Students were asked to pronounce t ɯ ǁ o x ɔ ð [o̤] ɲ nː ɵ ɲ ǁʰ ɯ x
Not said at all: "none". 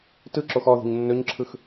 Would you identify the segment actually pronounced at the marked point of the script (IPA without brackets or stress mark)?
o̤